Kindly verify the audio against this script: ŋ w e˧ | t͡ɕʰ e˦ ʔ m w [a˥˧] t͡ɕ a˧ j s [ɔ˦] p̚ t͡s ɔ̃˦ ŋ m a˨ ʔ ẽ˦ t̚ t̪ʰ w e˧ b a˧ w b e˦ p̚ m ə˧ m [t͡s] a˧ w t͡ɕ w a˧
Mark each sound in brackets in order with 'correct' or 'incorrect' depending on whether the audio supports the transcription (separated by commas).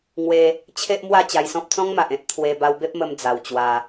correct, incorrect, incorrect